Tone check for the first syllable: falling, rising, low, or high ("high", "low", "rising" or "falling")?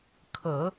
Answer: low